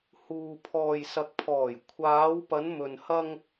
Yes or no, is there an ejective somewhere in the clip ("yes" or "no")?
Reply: no